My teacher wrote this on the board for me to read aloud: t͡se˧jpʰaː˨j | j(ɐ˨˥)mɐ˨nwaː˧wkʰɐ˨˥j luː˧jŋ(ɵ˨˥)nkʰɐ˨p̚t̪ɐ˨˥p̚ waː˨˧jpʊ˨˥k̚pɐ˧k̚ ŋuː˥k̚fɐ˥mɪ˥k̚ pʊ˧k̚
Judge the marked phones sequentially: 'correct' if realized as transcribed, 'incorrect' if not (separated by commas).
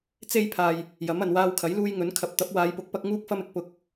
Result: correct, correct